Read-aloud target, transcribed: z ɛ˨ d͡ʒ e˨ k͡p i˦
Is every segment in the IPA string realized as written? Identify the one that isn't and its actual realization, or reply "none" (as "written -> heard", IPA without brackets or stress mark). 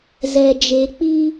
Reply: none